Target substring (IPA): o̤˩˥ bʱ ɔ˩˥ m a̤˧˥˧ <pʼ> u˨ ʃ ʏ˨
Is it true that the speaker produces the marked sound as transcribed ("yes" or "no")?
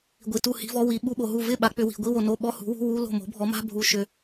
no